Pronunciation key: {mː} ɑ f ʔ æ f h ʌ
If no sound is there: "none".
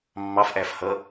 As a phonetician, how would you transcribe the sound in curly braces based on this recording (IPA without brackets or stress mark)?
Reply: mː